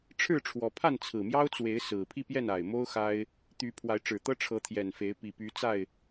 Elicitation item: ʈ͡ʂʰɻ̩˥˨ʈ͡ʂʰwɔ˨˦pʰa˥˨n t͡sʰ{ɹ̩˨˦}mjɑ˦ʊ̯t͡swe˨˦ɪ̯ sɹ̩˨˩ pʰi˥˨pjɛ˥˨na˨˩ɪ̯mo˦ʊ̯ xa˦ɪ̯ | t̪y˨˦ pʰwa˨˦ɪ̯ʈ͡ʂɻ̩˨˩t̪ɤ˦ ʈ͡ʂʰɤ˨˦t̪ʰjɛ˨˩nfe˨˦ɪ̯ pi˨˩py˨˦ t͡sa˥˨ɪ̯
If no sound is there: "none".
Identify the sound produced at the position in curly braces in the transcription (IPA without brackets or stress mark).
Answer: ɹ̩˨˩